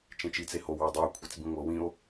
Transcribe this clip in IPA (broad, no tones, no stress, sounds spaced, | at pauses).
t͡ʃ ẽ t͡ʃ i t͡s e h o w u dˤ ɤ o̯ kʷʰ ɛ t͡s b ĩ ŋʷ ɤ w ĩ o̯